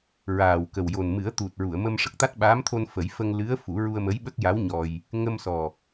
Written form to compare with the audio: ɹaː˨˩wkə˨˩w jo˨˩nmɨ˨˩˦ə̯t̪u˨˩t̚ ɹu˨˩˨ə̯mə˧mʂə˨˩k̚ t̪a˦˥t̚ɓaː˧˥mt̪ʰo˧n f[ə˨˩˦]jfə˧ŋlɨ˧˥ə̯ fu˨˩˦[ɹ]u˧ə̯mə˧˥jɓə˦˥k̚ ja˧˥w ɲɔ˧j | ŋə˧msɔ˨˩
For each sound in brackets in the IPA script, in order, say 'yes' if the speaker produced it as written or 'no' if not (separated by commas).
yes, yes